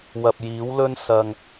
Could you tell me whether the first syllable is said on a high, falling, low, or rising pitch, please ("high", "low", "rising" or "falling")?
low